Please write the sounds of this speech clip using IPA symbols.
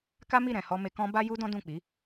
k a˦ m i˦˨ ɾ ɛ̃˨ h ɔ˧ m e˧ k ɔ̃˦ b a˦ j u˦ d ɔ̃˦ d ũ˦˨ k͡p i˨˦

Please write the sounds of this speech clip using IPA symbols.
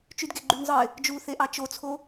t͡ʃ y d ɡ e ɡ͡ǃ y n zˤ ɯ ɪ̯ | d͡ʒ u θ e ʔ ɑ t͡ʃ o t͡sʰ o

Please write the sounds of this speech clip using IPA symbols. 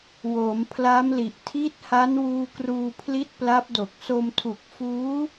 w oː˩˦ m pʰ l a˦˥ m l i˨˩ ʔ tʰ i˦˥ t̚ h a˦˥ n w uː˧ k r uː˧ pʰ l i˦˥ t̚ p l a˦˥ p̚ d o˨˩ k̚ s o˧ m tʰ u˨˩ k̚ f uː˦˥

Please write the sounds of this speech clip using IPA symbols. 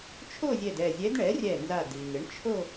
t͡ʃʰ o˥˧ zʲ ɛ˧˩ d ɛ˧˩ zʲ ɛ˧˥ d ɳ ɛ˩˥ rʲ ɛ˧˩ n z a˧˩ d i˩ ŋ ɪ˩˥ ɳ t͡ʃʰ o˥˧

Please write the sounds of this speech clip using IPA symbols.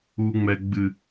u˦ ŋ͡m ɛ˦ ɡ͡b ɨ˦

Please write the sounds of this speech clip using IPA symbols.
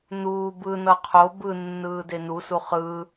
n uː b ɯ n ʌ qʰ o b ɯ nː ɯː d e n u s u χ ɯ

